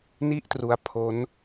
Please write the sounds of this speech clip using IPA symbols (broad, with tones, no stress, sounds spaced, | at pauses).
n i˥˩ ʔ t r u˧ a̯ pʰ o˦˥ n